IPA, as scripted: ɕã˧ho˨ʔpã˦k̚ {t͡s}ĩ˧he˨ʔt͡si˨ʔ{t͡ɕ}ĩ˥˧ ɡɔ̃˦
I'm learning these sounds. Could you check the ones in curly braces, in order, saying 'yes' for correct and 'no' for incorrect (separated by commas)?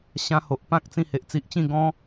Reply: yes, yes